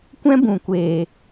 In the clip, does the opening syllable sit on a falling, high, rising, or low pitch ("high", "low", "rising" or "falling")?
high